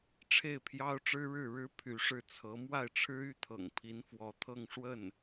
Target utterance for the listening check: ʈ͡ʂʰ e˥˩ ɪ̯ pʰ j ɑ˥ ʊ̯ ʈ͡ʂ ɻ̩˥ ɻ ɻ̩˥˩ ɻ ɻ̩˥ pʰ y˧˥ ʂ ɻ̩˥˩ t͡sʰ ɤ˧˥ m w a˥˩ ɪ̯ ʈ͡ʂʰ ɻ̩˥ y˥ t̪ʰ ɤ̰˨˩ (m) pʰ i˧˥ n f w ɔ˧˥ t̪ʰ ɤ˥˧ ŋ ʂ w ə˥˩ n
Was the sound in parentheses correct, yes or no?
no